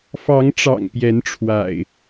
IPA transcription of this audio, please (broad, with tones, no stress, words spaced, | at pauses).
fɑ˨˦ŋʈ͡ʂɑ̰˨˩ŋ pjɛ˨˦nʈ͡ʂʰwa̰˨˩ɪ̯